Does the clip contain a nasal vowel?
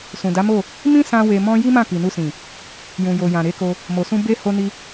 yes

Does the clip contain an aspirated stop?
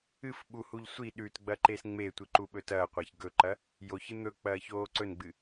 no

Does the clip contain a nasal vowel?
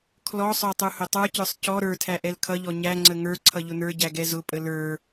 no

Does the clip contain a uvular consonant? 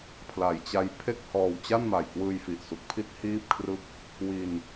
no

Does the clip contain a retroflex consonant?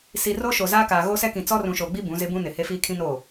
no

